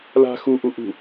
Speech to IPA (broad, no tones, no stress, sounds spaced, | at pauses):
l a̤ x u ʔ u ʔ ṳ